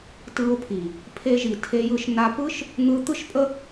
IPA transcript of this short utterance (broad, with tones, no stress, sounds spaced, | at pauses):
t ɯ˧ ʊ̯ pʰ i˨ | pʰ e˧ ʒ i˨ tʰ e˧ j ɯ˧ ʃ n a˧ p ɯ˦ ʃ | n̪ ɯ˧ t̪ ɯ˦ ʃ pʼ ə˦